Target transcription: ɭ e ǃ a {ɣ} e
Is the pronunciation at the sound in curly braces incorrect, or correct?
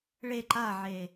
incorrect